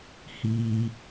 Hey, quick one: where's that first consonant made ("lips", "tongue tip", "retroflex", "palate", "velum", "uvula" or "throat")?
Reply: throat